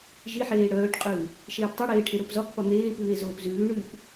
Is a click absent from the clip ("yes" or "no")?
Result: yes